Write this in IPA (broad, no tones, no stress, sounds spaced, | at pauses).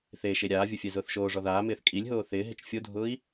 θ e ʃ e ɾʲ aː vʲ ʊ fʲ ɛ z ʊː θ ʃ oː ʐ ɔ ð aː m ɪː θ kʼ i lʲ ɦ oː θ ɪː ɦ ɪ t͡ʃ fʲ o dʱ ʊː i̯